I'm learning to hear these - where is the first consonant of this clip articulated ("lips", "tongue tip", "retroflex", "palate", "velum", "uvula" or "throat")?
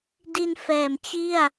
tongue tip